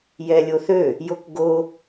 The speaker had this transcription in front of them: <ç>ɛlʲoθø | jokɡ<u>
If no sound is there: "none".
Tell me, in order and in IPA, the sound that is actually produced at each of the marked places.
j, o

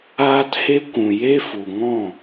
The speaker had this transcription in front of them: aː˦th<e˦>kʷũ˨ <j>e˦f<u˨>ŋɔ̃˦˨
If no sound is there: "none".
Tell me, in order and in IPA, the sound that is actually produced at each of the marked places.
e˦, j, u˨

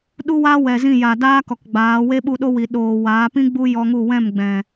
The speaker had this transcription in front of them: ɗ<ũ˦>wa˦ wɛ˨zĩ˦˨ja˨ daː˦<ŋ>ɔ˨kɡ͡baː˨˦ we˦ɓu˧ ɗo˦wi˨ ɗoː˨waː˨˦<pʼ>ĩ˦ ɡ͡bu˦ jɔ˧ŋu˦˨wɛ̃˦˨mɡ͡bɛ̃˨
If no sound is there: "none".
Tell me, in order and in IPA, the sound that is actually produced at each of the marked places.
u˦, k, p

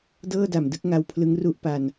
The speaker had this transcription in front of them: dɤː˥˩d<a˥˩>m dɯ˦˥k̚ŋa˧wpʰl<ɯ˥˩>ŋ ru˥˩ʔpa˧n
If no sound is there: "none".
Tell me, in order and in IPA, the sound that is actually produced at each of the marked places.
a˨˩, ɯ˦˥

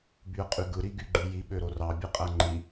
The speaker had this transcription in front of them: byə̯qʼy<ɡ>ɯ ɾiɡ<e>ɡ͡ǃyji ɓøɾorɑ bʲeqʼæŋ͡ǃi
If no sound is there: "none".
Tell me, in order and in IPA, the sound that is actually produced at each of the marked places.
ɡ, y

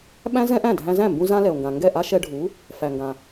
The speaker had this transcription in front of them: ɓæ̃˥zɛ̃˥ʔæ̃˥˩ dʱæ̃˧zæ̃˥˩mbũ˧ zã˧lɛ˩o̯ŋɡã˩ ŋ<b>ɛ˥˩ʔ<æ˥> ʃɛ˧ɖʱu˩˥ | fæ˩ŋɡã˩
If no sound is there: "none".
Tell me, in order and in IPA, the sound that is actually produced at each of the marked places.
ɡ, a˥

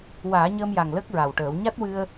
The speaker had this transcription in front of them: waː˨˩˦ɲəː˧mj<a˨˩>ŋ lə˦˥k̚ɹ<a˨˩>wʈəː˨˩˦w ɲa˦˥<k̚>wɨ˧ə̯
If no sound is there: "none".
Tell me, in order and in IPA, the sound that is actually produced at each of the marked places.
a˨˩, a˨˩, t̚

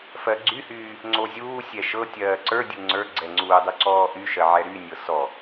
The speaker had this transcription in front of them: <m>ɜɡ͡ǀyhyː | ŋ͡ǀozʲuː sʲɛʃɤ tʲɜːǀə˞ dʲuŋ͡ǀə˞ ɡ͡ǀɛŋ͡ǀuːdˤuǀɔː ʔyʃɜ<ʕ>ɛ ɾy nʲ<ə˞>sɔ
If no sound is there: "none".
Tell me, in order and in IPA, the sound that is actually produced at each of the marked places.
f, ʕ, ɤ

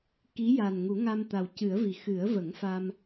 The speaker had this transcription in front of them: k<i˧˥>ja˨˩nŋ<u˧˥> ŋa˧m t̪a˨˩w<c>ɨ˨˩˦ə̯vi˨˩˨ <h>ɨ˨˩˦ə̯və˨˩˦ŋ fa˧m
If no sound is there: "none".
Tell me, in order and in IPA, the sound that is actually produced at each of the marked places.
i˧˥, u˨˩˦, c, x

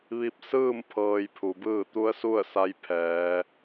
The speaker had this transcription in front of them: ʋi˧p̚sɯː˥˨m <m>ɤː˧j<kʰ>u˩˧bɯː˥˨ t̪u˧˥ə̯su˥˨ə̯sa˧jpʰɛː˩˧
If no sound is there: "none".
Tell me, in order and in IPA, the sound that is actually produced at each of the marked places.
pʰ, pʰ

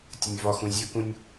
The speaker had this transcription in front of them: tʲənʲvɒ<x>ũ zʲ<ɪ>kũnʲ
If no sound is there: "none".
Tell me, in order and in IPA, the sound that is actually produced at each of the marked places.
x, ə

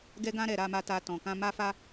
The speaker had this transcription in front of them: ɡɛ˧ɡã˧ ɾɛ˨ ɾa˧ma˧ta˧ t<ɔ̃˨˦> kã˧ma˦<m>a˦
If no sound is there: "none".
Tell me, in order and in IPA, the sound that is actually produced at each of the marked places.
ɔ̃˨, f

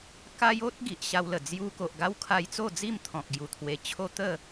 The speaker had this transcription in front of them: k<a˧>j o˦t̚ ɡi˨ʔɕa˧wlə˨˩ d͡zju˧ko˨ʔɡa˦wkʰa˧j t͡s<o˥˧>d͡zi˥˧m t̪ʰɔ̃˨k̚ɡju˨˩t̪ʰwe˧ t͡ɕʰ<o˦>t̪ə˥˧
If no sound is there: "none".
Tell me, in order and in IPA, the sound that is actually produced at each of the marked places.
a˦, o˥˧, o˦

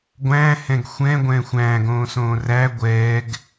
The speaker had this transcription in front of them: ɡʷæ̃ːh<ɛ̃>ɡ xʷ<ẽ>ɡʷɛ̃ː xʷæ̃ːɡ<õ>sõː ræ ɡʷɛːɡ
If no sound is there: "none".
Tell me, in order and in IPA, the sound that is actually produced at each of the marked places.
ɛ̃, ɛ̃, õː

